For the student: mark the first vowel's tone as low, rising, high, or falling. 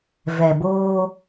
low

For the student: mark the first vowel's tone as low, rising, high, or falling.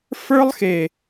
high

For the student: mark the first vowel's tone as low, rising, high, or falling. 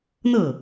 falling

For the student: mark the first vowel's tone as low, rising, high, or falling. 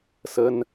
high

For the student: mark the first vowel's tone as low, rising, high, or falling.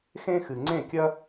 high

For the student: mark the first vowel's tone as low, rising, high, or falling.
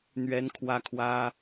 high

